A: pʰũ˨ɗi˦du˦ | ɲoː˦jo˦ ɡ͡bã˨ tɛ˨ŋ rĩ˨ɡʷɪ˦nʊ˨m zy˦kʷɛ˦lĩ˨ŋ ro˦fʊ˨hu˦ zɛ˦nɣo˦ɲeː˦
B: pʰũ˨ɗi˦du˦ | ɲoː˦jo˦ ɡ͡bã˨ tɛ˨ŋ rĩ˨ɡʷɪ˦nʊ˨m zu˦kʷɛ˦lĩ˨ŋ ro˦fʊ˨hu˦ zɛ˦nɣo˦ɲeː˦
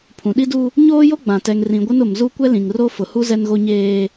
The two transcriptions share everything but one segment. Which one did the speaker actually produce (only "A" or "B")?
B